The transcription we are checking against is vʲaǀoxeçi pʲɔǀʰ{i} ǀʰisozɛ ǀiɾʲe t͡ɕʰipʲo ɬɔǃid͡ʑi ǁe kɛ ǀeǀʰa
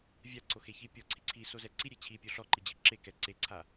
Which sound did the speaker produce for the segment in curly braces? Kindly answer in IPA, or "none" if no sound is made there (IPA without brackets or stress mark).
i